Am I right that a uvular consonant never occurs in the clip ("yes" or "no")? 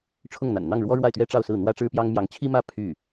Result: yes